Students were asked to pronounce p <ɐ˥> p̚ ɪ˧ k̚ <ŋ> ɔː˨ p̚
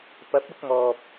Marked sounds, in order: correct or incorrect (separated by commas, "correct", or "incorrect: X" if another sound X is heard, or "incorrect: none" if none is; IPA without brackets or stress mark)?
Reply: incorrect: ɐ˨˥, correct